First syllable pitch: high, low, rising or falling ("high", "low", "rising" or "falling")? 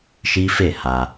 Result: high